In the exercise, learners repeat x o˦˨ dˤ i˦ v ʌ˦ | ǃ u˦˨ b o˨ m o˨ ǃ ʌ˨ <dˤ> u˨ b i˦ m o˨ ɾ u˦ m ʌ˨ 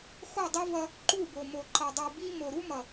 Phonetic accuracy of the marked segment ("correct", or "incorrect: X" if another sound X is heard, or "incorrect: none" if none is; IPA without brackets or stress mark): correct